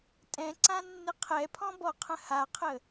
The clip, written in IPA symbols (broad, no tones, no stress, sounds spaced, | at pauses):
tʼ ɛ̃ ǀ ã nː ɪ qʰ ɛ pʰ ɔ̃ b ɔ qʰ ə̃ h a qʰ ə